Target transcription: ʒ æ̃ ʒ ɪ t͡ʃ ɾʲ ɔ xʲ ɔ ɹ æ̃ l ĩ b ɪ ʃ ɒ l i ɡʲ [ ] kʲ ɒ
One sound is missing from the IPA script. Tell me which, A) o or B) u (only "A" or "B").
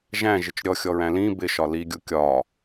B